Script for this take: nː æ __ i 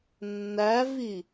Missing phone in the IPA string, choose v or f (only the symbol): v